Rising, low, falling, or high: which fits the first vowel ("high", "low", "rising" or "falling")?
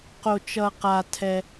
low